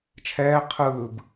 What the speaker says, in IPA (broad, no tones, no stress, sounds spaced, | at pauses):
t͡ʃʰ ɛː qʰ ɯː b